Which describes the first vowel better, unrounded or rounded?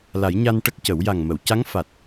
unrounded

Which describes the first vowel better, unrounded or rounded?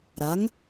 unrounded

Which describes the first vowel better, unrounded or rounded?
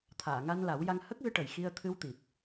unrounded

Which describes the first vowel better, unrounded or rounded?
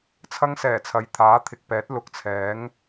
unrounded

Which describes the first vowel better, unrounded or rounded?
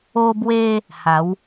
rounded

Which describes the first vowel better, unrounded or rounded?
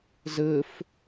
unrounded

